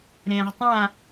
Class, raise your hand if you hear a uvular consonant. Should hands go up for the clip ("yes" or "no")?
yes